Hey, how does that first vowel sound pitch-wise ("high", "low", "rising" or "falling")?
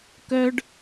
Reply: high